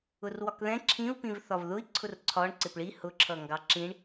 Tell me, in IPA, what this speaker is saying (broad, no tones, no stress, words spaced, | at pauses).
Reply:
ʊrwɒkðɛ̃ ǁʰĩu̯pĩv θɒvðʊi̯ ǀʰʊrǀʰɒɳ ǀɪpɭi hʊǁʰʌ ŋɡɑǁĩɳ